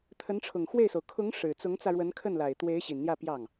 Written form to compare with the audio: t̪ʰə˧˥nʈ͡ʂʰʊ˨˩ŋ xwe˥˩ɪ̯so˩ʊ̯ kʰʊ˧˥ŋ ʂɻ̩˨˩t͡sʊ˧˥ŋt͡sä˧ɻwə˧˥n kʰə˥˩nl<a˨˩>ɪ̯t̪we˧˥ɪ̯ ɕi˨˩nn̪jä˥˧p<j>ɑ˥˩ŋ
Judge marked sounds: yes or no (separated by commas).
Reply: yes, yes